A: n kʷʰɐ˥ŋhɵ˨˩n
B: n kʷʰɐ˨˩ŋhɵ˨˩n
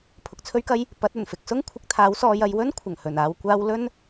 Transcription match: B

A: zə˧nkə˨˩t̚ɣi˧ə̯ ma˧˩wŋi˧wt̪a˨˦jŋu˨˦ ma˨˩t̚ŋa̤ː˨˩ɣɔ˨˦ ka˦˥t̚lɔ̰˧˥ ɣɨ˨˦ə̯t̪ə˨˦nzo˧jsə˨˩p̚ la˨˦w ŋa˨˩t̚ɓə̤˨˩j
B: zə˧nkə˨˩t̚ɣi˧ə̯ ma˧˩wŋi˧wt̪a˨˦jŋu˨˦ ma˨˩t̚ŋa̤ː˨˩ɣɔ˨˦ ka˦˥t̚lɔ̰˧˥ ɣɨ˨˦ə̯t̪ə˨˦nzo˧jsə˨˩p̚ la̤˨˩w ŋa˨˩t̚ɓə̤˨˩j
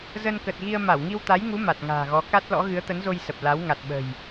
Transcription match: A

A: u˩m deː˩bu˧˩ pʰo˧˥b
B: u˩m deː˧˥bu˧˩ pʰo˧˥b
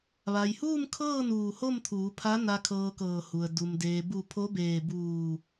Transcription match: A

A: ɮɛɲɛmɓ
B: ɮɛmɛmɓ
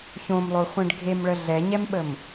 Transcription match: A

